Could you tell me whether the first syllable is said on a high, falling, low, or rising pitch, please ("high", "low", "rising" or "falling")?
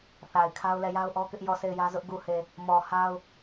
low